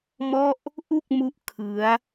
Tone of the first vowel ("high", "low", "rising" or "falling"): falling